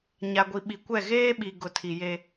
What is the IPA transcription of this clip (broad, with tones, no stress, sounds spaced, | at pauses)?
ɲ a˨ ɡʷ i˨ ɓ i˨ kʷ ɛ˦˨ ɣ eː˦ ɓ i˨ ɡ ʊ˨ tʰ i˨ j e˦